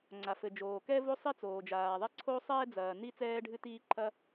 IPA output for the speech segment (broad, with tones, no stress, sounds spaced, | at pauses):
ŋ͡ǀ a˩ f ɘ˩ d͡ʒ oː˩ k ɛ˥ v o˥ sˤ i˥ t͡s oː˩ d͡ʒ aː˩ ðˤ ɛ˥ ǀʰ o˥ sˤ ɛː˥ d͡z ɐː˩ n i˥ t͡s ɛː˥ ɖʱ ɨ˥ t iː˥ ǃʰ ɐ˥